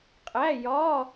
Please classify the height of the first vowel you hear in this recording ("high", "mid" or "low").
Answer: low